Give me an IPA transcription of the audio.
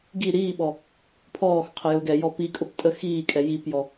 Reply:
ɡ i ɾ iː ɓ ɔ | pʰ ɔː x qʰ ə j ʊː ɡ ɛ j ɔ p i kʼ ʊ p tʼ ə x iː kʼ ɛ j i p j ɔ

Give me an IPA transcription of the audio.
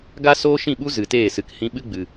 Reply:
ɡ a˧ s oː˦ ʃ ĩ˦˨ ɓ u˦ z ɨ˨ t eː˦˨ s ɨ˨ k h ĩ˧ ɓ ɨ˦ ɡ͡b ɨ˨

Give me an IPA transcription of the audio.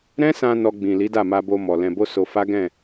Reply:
ɾ ɛ̃˦ s ã˧ n ɔ˧ ɡ͡b ĩ˨ l i˨˦ d a˦˨ m a˧ b o˧ m ɔ˨ l ɛ̃˧ b o˦ s o˧ f a˦ ɡ ɛ̃˦˨

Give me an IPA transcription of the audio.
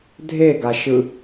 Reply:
dʱ e ɡ a ʃ ɯ

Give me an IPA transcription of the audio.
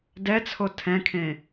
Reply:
d ɛ t͡sʰ o tʰ ɛ̃ kʰ ẽ

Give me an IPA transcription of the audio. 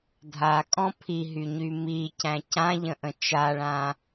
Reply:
dʱ a kʼ ɔ̃ pʰ i ɦ y ɲ y m i c æ̃ c ã ʎ ə̃ ʔ ə̃ t͡ʃ a ɭ ã

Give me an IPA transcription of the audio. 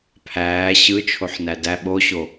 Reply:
pʰ æː ɕ ɯ t͡ʃʰ o ħ n æ d æ ɓ o ɕ o

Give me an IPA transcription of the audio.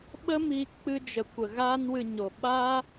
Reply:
ɓ ə˦ m iː˧ k k͡p ɨ˧ d͡ʒ ə˨ kʷ ə˨ ɣ aː˦ n w ɨ˧ ɲ o˨ ɓ aː˦

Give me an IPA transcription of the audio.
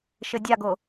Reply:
ʃ ɘ dʲ a ɡ o

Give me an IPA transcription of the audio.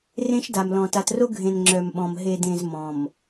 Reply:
r ẽ˦ ʃ d a˨ m l ɔ̃˨ t a˨ t r o˦ ɡʱ ẽ˨ n ŋ͡ǁ œ˨ m ɓ ɔ̃˨ m ɦ e˨ d ẽ˨ z m ɔ̃˨ m

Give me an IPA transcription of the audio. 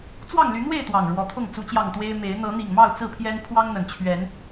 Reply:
t͡s w ɑ˥˨ ŋ l y˨˦ n̪ w e˥˨ ɪ̯ t̪ w ɑ˨˩ ŋ ɻ w ɔ˨˦ t̪ʰ ʊ˥˨ ŋ t͡s u˨˦ t͡ɕ j ɑ˨˩ ŋ t̪ w e˦ ɪ̯ m e˨˦ ɪ̯ n̪ ɤ˨˦ n̪ i˨˩ ŋ m ɑ˥˨ ʊ̯ t͡s ɹ̩˥˨ pʰ j ɛ˦ n pʰ w ɑ˦ ŋ n̪ ə˨˩ n t͡ɕʰ ɥ ɛ˨˦ n

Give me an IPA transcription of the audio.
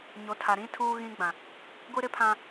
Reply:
ɲ o˨˦ tʰ a˨ ɾ ĩ˦ tʰ uː˦ ɣ ĩ˦ ɡ͡b ã˨ | ɡʷ i˦ ɾ ɪ˦ pʰ ã˦

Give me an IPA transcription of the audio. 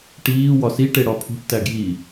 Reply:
ʈ iː w ɒ s i ʈ e ɽ ɒ pʰ ṳ ʈ t æ ɡ j i

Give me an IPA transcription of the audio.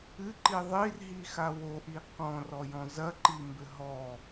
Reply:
ɨ ǃ i ðˤ i r ɦ i x a w o ʔ i q ɔ̃ r ɔ j ɔ̃ z ɐ ǃ i m b ɘ ɦ ɔ

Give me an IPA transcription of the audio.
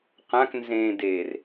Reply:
q ã k n z ẽː d eː r

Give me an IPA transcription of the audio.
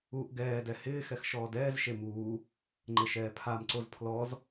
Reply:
u ʔ ɡ ɛː d ɛ h ɪː x ɛ x ʃ ɔː d ɛː z ʃ e m uː | ŋ͡ǃ e ʃ ɛː pʰ a m ǀ o z pʰ l ɔ z

